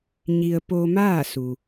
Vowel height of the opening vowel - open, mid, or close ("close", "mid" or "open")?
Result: close